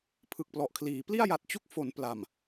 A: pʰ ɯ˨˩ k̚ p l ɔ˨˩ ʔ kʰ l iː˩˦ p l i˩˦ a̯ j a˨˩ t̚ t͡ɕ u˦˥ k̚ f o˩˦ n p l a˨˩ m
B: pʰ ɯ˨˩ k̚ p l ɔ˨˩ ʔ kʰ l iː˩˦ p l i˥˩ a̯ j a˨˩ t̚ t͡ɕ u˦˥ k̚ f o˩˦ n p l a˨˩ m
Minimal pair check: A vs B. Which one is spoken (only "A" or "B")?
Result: B